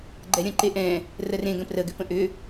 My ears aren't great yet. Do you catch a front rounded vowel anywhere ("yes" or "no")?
yes